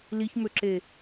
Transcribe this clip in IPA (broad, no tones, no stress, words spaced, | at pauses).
liçmøǁe